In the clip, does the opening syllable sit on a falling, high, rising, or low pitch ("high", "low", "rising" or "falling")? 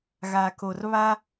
low